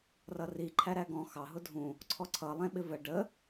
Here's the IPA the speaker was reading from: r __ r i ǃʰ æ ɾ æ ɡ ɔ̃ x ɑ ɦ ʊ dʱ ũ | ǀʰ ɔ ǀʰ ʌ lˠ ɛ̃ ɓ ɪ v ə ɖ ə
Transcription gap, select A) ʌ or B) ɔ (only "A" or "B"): A